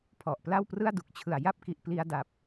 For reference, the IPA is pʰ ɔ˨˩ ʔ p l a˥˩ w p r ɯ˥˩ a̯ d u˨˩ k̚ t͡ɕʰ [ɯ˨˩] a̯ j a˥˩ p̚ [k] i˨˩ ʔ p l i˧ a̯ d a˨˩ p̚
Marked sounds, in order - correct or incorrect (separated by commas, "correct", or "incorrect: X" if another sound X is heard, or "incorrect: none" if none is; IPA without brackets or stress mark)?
correct, correct